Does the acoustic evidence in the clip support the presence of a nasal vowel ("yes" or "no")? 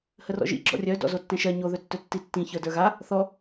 yes